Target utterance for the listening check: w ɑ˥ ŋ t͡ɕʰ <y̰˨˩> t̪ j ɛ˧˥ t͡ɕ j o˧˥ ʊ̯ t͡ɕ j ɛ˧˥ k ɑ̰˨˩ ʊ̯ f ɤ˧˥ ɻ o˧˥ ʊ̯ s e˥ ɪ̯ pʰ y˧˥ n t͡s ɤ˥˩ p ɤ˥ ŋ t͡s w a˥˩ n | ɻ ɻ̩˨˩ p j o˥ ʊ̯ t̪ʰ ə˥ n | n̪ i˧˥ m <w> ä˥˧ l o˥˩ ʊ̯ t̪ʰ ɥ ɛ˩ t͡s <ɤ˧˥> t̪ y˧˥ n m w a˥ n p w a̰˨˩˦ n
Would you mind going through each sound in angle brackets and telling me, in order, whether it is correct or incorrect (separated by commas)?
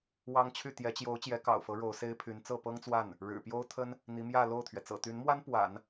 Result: incorrect, incorrect, incorrect